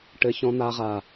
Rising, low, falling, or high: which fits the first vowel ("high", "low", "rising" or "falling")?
low